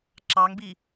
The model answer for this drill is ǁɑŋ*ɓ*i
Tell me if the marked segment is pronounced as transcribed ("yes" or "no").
no